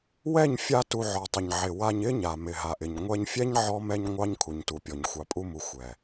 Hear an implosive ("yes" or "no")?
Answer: no